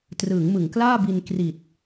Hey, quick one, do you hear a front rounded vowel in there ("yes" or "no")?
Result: no